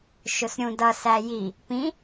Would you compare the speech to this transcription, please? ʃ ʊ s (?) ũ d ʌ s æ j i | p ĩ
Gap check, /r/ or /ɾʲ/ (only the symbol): ɾʲ